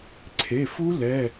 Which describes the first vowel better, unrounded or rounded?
unrounded